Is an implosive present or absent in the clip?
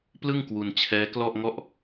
absent